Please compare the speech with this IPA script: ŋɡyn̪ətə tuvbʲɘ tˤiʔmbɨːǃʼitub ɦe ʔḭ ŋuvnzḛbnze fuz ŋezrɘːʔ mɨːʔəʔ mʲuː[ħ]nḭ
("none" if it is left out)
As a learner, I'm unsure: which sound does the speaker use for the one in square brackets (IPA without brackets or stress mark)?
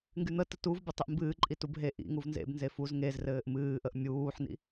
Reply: ħ